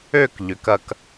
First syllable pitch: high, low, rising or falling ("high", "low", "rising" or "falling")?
falling